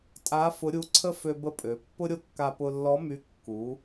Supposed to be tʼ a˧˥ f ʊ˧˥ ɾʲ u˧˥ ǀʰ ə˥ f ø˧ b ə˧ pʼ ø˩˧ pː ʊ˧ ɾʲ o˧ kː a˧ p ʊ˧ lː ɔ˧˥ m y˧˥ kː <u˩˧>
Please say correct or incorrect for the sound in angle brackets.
correct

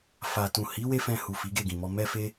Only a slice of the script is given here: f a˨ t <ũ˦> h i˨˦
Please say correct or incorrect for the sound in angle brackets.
incorrect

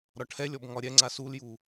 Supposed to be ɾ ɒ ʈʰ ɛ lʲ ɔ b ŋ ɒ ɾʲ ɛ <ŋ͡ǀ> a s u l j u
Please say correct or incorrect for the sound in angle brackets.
correct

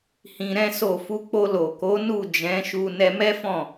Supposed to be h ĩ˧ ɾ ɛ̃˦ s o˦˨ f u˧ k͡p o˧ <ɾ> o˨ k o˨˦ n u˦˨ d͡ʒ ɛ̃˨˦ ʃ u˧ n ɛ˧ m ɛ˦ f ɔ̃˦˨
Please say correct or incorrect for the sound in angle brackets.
incorrect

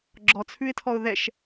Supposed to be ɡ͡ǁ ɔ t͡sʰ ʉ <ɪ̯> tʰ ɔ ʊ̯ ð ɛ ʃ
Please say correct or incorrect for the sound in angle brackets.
correct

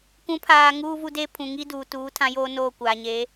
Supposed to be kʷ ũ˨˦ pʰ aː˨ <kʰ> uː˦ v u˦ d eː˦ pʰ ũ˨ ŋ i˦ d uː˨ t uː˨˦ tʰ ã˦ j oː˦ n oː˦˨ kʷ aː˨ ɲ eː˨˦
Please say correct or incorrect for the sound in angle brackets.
incorrect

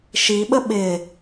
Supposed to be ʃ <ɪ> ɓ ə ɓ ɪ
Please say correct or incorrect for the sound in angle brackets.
incorrect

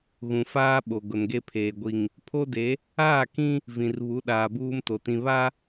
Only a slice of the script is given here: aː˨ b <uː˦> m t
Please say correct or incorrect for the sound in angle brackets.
correct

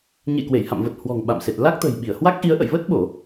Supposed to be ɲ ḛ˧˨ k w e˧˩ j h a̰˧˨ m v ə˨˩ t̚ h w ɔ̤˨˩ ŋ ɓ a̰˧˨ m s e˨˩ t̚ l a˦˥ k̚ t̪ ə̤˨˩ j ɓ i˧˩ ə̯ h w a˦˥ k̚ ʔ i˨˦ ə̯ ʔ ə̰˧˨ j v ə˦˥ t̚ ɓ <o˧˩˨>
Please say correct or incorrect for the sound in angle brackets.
correct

